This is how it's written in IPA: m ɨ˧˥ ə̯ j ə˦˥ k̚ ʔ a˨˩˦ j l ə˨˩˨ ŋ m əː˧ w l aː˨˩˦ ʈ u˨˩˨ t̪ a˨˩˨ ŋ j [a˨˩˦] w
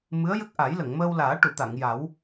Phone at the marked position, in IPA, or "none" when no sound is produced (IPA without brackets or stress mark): a˨˩˦